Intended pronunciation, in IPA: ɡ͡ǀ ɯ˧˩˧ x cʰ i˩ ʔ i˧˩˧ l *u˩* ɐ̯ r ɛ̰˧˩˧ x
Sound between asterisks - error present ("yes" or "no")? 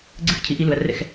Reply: no